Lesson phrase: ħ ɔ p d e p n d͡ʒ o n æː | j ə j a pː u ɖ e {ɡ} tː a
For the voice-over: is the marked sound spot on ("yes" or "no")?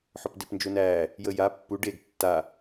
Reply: yes